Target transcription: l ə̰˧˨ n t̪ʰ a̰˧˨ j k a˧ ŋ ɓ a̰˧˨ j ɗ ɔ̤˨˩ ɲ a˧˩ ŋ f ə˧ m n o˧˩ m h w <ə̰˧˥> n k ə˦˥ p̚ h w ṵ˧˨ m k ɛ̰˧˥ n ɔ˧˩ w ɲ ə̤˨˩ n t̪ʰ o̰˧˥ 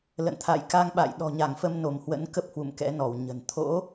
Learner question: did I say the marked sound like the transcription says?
yes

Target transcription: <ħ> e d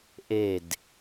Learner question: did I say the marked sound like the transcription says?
no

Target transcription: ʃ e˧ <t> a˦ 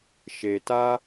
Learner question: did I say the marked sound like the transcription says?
yes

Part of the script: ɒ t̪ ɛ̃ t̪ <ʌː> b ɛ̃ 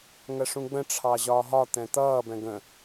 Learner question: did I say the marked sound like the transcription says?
yes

